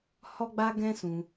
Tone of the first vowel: high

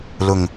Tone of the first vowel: low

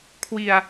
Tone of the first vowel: low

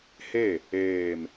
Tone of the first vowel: falling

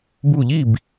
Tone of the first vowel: falling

